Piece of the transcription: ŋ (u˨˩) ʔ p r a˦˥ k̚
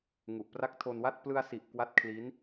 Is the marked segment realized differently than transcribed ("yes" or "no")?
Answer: no